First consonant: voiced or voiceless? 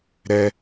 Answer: voiced